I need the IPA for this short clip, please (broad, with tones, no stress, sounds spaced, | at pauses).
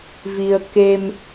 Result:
v i˧ ə̯ k e˧ m